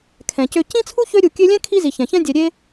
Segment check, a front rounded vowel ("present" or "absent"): present